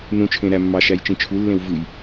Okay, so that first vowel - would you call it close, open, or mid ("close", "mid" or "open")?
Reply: close